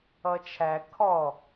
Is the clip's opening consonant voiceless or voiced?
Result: voiceless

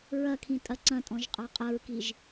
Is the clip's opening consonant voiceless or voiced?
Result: voiced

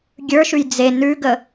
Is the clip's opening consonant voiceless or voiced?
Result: voiced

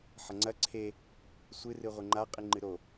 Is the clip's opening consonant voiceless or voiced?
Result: voiceless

